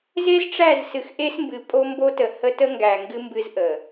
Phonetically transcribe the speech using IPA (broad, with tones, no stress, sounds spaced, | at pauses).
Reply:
z e˦ z ʈ͡ʂ æ˦˨ z s ɨ˨ x ʔ e˦ s m b ɨ˨ pʼ o˦ m b o˦ t ə˨ h ə˦ t ə˦ ŋ ɡ æ˨ ŋ ɡ ɨ˦ m b ɨ˦ z ʔ ə˨